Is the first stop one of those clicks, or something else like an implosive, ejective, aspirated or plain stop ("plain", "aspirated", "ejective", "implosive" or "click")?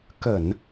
plain